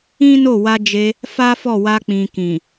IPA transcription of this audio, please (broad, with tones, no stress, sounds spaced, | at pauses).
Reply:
ĩ˦ n o˦˨ w a˧ d͡ʒ e˧ | f a˦ f ɔ˦˨ w a˧ k͡p ĩ˨ k ĩ˨